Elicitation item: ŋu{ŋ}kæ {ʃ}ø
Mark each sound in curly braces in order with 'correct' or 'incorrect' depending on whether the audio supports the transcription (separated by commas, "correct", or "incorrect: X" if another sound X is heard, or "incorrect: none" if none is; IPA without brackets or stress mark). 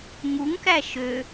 correct, correct